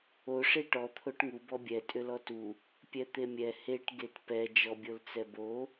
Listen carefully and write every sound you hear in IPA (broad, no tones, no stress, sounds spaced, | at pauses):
o ʂ e ʈ ɔ t̪ʰ o ʈ ŋ u b ɔ bʲ ɛ tʼ ʏ l ɔ t u | pʲ ɛ t̪ e mʲ ɛ h e ʈ ɡ e t p ɛ d͡ʒ ɔ bʲ o l t͡s ɛ b o